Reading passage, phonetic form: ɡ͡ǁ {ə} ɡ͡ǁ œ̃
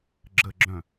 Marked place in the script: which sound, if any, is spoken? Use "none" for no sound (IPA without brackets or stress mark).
ə